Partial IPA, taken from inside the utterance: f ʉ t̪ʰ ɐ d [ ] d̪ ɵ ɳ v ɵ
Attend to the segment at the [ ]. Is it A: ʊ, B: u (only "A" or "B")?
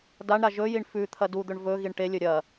B